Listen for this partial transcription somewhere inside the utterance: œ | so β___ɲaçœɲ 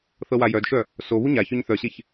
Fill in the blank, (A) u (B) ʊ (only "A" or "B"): A